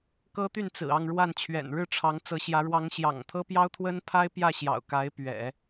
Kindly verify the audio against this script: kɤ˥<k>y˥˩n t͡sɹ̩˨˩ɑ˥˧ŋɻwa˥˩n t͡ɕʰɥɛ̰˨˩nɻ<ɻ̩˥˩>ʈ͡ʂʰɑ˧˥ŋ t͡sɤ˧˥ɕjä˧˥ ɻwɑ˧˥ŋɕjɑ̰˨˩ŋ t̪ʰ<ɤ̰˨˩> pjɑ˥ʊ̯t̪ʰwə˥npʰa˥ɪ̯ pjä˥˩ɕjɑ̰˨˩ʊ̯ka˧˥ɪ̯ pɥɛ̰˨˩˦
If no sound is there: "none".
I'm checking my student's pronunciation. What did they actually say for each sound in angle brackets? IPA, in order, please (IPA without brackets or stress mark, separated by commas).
t̪, ɻ̩˥˩, ɤ˥